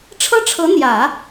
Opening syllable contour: high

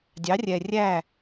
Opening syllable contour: rising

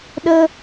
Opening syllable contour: high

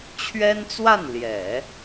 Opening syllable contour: high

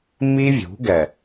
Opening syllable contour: high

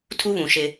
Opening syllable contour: high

